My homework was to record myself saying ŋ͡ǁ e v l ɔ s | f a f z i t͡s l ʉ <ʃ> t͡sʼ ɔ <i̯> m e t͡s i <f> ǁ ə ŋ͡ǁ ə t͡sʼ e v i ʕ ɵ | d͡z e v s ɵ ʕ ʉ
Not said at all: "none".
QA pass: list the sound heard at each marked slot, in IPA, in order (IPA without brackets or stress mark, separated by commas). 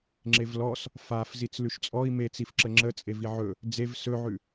ʃ, i̯, f